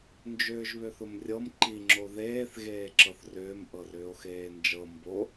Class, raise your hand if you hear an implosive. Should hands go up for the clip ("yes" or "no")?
no